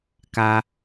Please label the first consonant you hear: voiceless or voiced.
voiceless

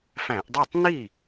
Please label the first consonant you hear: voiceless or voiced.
voiceless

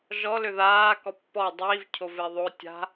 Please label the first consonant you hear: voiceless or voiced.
voiced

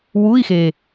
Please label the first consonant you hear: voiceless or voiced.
voiced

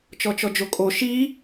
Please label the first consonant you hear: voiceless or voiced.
voiceless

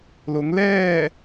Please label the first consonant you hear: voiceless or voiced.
voiced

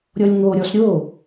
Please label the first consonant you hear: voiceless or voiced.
voiced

